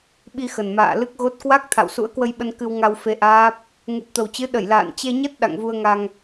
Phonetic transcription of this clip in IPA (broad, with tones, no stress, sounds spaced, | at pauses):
ɓ i˧ x ə˨˩ n m a̰ː˧˨ l ɨ˦˥ k̚ ɣ o˦˥ t̚ k w a˦˥ k̚ t̪ʰ a̰˧˨ w s ṵ˧˥ ə̯ k w ə˧ j ɓ ə˧ n k ɨ˧ w ŋ a˧ w f e˧ ʔ aː˦˥ p̚ | ŋ u˨˩ p̚ t̪ ə˨˩ w t͡ɕ ɨ˨˦ ɗ ə˧˩ j l a̰ː˧˨ n t͡ɕ e˧ ɲ ə˦˥ t̚ ɗ a̰˧˨ ŋ v u˧ ə̯ ŋ a˧ ŋ